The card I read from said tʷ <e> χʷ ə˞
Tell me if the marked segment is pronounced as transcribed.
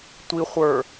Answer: no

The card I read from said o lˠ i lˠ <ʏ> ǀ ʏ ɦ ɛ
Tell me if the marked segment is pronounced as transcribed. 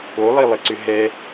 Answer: no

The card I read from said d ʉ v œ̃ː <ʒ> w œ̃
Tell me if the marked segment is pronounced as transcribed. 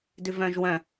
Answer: yes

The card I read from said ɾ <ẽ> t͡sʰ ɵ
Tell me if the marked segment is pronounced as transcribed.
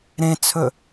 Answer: yes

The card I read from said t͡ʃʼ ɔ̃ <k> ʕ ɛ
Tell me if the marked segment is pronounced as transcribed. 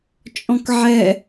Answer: yes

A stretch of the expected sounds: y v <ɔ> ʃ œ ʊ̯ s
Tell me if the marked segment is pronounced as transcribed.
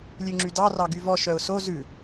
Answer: yes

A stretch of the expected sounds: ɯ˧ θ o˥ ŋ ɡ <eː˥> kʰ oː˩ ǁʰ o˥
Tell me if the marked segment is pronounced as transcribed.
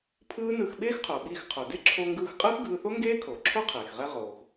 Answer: yes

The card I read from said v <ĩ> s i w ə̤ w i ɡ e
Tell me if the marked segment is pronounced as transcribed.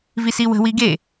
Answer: no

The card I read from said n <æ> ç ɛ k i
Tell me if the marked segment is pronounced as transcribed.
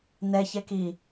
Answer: no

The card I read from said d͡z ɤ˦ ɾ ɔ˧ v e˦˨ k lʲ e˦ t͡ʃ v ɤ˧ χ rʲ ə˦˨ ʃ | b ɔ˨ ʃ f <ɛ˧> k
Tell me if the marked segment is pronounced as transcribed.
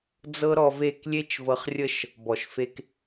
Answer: no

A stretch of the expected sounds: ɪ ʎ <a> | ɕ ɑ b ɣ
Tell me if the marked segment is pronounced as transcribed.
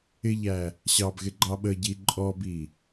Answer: no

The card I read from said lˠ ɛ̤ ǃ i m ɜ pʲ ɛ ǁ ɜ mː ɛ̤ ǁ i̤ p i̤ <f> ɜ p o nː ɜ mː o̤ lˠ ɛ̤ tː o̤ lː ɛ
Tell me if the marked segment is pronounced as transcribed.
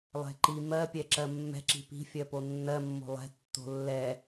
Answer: no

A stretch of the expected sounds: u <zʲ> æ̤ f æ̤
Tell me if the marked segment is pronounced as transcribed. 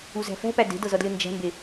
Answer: no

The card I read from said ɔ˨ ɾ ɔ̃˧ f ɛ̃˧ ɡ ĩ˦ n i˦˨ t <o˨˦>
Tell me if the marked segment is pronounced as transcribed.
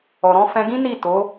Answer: yes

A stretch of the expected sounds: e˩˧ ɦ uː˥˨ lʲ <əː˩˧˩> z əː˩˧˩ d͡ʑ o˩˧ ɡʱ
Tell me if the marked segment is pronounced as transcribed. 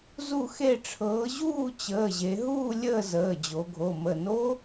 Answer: no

